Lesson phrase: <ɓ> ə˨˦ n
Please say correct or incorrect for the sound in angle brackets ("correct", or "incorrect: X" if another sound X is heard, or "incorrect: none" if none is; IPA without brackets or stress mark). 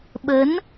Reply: correct